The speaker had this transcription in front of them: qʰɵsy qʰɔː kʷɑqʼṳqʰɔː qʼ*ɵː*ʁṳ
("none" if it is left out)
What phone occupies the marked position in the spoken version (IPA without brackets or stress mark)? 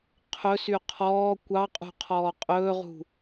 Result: ɵː